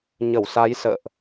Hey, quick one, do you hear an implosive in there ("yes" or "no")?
no